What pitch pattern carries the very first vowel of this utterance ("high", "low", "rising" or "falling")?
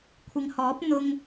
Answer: low